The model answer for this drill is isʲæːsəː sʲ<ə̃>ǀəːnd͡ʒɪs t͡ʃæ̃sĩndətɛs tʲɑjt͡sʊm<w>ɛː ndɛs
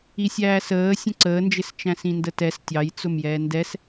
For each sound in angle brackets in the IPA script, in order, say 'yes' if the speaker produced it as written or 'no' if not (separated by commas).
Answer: yes, no